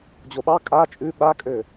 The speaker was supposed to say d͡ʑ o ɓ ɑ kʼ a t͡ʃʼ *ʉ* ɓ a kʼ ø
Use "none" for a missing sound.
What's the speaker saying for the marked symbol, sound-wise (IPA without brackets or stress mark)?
ʉ